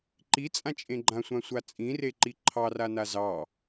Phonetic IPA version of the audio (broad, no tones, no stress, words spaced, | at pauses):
ǃit͡sʼãt͡ʃʼẽ ɡ͡ǃãsʷãsʷa t͡sʼĩreǃi ǃʰɑrana zɑ